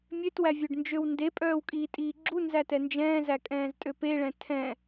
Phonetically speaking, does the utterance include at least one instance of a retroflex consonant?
yes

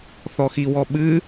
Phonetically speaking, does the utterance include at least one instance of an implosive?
yes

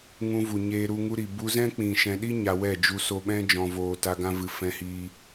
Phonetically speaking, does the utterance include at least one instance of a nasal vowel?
yes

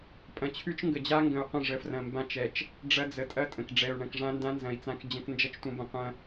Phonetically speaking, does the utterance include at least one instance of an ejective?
yes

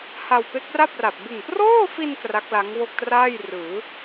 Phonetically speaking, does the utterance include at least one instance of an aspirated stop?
no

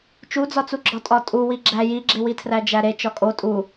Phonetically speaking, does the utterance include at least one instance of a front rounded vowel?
no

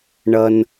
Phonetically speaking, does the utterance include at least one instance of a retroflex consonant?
yes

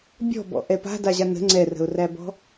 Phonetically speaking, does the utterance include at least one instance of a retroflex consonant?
no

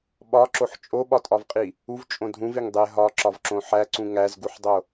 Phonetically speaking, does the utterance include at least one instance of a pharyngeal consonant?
yes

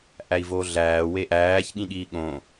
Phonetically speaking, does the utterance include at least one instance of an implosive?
yes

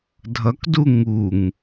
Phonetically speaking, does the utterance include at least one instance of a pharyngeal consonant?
no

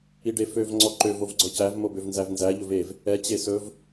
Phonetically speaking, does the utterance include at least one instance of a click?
yes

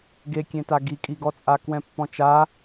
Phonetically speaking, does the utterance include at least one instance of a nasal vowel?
yes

